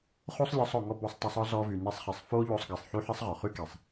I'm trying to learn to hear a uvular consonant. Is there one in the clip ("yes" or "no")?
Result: yes